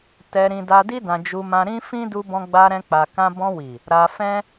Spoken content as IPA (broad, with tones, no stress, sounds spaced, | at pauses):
t ɛ˧ ɾ ĩ˧ d a˧ d i˦ d ã˧ d͡ʒ u˧ m ã˧ ɾ ĩ˦ f ĩ˦ d u˧ b ɔ̃˧ ɡ͡b a˧ ɾ ɛ̃˦ k͡p a˧ k ã˦ b ɔ̃˧ w i˨ | ɾ a˧ f ɛ̃˦